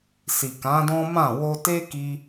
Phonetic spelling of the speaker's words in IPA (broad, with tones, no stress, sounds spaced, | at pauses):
s i˨ k ã˨˦ d ɔ̃˦ m ã˦˨ w o˧ t e˦ k i˦